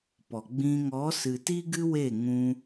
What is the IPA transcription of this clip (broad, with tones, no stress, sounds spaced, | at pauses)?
p ɔ˨ ɡ͡b ĩ˧ ŋ ɔ˨˦ s ɨ˨ t i˦ ɡ ɨ˦ w e˦˨ ŋ ũ˧